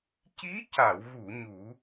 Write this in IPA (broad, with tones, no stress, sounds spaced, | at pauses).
c i˧˥ c a˨˩˨ w ɣ u˨˩˨ ɲ u˨˩˦